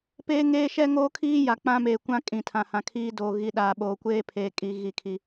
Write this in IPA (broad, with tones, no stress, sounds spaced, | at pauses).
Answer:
p eː˦ ŋ eː˦ ʃ ɛ˦ ŋ oː˦ kʰ iː˦ j a˨ k͡p ã˦ m eː˨ kʷ ã˦ kʼ ĩ˨ tʰ ã˨ h ã˨ kʰ iː˦ d oː˨ ɣ i˨ ɗ aː˨ ɓ oː˨ kʷ eː˦ pʰ eː˨ kʼ i˨ ɣ i˦˨ kʰ i˦